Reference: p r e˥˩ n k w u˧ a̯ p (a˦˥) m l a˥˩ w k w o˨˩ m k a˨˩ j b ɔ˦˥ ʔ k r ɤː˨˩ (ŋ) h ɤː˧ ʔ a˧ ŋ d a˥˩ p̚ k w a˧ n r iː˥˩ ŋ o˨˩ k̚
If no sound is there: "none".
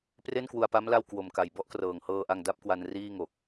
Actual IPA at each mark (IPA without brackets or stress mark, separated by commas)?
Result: a˦˥, ŋ